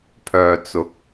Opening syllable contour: low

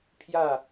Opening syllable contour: falling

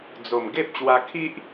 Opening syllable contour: low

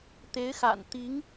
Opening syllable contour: rising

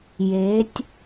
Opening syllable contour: rising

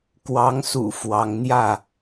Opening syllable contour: rising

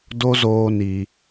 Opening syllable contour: high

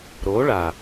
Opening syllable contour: rising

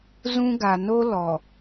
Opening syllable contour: high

